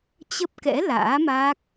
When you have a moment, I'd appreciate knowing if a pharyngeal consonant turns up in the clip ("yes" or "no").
no